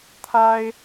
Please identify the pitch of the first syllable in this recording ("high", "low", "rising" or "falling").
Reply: high